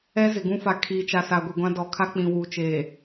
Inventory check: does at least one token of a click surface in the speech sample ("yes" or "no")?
no